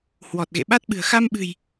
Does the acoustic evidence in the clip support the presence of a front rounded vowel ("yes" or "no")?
no